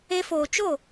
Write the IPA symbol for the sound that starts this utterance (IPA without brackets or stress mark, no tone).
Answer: e